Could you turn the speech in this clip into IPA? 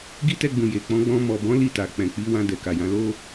ɡ i˦ t ɛ˧ ɡ͡b ũ˨ j e˨ k͡p ɔ̃˨˦ ɡ͡b ɔ̃˧ m ɔ˨ b ɔ̃˨˦ l i˦˨ t a˨ k͡p ɛ̃˨ k͡p i˨˦ w ã˧ d ɛ˨ k a˨ j ã˨˦ l o˦

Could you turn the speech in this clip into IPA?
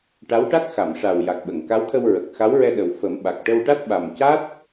ʈ a˧˥ w ʈ a˦˥ k̚ x a˨˩˨ m ʂ a˨˩ w j a˨˩ k̚ ɓ ə˨˩˨ ŋ k a˧˥ w t̪ʰ ə˧ w ɹ ə˨˩ k̚ x a˧˥ w ɹ ɛ˧ ɗ ə˨˩ w f ə˨˩˦ m ɓ a˨˩ k̚ ʈ ə˧ w ʈ a˦˥ t̚ ɓ a˨˩ m c a˦˥ t̚

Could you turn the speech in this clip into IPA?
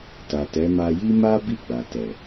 t a˨ t ɛ˨˦ m a˧ j i˦ m a˦ b i˦˨ ɡ͡b a˨ t ɛ˨

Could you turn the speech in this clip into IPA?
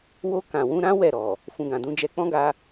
w o˧ k ã˨ w ũ˧ ɾ ã˦ w ɛ˦˨ ɾ ɔ˨ | f ũ˨ ɡ ã˨ d ũ˨˦ d͡ʒ ɛ˧ k͡p ɔ̃˦ ɡ a˧

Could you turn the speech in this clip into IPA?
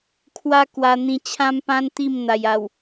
kʰ w a˦ k w a˧ n̪ ĩ˧ t͡ɕʰ ã˦ m p ã˦ n t̪ i˥˧ m n̪ a˨˩ j a˨˩ w

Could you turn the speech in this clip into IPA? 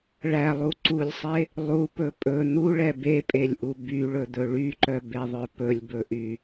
ɭ æ lˠ u ǀ u lʲ sˤ e | lˠ u p ɵ pʼ ɵ n̪ u ɭ ɛ b e pʼ e lʲ ʔ u b y ɭ ɵ d̪ ɵ ɭ y ǃ œ b e ðˤ œ p ɵ lʲ b ɵ ʔ y

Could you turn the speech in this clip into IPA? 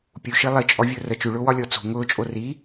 pʲ u ʃ i lˠ i t͡ʃʼ ɔ vʲ ʊː r ə t͡ʃ ʉ ɭ ʊː w ɒ lʲ ɔ t͡s ṳ ŋ ʊː t͡ʃʼ o r i

